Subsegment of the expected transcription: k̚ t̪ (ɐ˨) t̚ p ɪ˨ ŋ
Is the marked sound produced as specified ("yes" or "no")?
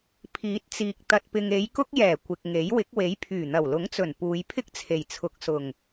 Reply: yes